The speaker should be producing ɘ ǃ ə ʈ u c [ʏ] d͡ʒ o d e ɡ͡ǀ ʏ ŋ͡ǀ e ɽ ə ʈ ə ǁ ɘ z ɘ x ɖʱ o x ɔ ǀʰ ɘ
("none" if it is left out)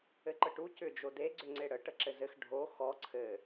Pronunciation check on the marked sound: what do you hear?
ʏ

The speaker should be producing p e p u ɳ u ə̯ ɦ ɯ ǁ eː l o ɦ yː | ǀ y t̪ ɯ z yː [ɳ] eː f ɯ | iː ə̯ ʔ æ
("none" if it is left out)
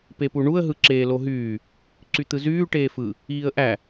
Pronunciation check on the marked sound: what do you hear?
ʈ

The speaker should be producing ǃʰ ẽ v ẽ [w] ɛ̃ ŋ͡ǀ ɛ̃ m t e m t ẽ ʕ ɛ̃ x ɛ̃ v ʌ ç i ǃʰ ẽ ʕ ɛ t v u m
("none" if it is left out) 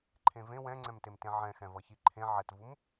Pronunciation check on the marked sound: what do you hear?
w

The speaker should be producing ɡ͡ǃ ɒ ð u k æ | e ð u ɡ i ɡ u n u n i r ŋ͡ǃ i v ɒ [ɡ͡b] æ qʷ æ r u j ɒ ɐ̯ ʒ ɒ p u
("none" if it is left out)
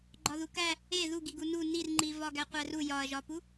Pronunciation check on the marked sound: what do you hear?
ɡ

